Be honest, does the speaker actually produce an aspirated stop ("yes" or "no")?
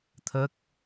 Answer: yes